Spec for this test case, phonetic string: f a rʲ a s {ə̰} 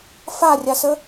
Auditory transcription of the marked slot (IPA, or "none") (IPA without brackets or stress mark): ə